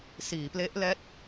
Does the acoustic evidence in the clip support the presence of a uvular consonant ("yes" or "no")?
no